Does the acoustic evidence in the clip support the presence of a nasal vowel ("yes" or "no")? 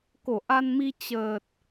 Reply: no